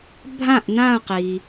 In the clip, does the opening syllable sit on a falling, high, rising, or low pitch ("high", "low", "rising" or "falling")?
falling